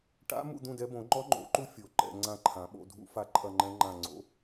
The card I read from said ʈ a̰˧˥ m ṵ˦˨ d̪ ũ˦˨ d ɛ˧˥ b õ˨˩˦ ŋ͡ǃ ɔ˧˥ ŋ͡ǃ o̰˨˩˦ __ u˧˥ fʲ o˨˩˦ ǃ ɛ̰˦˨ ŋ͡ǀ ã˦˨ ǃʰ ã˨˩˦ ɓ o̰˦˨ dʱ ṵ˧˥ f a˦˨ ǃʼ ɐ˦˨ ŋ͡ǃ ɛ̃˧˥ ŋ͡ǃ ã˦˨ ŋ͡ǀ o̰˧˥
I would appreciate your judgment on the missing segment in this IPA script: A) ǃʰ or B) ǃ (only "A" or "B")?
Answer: B